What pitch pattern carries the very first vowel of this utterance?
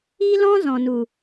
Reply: high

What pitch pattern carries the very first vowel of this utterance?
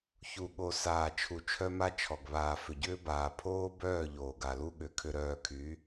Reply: low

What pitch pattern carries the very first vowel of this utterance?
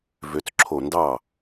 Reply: rising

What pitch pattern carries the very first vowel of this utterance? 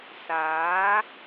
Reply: rising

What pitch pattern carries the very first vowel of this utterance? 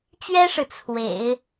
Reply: high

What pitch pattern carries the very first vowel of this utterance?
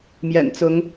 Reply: low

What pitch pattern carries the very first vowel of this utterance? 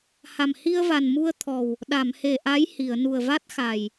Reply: low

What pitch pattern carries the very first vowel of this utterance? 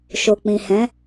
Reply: low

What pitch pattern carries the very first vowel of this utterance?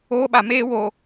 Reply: high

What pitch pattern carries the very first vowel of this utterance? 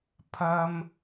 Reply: high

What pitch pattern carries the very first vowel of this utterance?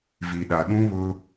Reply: low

